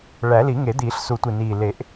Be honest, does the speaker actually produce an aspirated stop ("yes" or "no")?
no